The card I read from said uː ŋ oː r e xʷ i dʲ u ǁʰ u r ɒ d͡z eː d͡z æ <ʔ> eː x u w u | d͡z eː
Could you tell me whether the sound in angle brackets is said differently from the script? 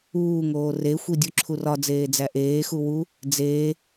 no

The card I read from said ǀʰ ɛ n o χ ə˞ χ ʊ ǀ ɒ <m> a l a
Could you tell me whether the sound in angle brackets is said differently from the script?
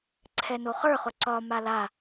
no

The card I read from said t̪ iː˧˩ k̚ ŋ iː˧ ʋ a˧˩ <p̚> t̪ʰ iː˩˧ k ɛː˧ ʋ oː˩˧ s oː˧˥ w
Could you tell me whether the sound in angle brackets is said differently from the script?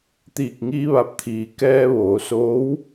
no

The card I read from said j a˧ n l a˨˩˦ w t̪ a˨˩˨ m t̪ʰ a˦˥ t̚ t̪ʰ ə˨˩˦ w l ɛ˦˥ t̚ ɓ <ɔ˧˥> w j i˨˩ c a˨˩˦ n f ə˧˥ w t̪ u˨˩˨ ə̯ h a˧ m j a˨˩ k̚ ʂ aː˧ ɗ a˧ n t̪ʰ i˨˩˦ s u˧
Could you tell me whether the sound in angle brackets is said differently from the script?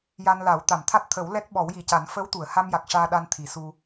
yes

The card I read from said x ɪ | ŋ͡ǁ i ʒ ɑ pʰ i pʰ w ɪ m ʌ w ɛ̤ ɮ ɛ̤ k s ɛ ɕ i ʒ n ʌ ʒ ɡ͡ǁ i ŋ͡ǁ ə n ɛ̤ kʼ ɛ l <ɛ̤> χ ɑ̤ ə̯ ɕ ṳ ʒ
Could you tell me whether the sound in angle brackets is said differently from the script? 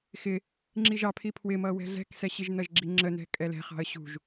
no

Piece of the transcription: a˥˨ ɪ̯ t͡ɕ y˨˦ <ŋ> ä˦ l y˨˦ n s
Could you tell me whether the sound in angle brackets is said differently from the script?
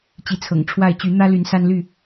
yes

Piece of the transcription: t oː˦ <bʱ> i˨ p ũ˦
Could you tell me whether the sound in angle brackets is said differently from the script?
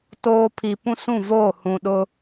yes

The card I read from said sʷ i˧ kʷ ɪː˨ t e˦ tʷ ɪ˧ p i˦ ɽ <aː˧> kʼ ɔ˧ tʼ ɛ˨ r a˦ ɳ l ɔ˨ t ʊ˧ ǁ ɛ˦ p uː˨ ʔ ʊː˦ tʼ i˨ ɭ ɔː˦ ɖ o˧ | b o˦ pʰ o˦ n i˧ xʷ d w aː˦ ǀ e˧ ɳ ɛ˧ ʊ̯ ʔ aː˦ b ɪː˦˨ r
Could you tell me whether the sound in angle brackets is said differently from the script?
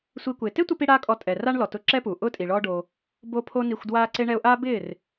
yes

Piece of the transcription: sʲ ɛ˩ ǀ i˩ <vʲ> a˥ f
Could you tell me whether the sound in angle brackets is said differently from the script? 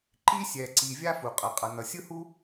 no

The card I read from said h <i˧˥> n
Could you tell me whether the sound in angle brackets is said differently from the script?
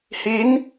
no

